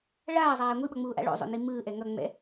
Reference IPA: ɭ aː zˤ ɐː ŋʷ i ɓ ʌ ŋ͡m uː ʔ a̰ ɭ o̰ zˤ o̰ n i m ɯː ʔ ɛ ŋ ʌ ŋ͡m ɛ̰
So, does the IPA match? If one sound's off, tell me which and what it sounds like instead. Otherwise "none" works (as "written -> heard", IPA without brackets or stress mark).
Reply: ɐː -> aː